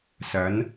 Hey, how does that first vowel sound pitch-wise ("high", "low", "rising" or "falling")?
rising